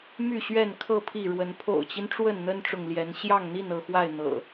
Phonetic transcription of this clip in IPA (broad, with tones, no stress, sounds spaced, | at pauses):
m y˥˨ ɕ ɥ ɛ˥˨ n kʰ ɤ˥˨ pʰ i˥˨ ɻ w ə˨˦ n pʰ o̰˨˩ ʊ̯ t͡ɕ i˦ n ʈ͡ʂ w ə˥˨ n n̪ ə˦ n ʈ͡ʂ ʊ˨ ŋ l j ɛ˨˦ n ɕ j ɑ˥˨ ŋ n̪ i˥˨ n ɤ˥˨ x w a˥˨ ɪ̯ n̪ ɤ̰˨˩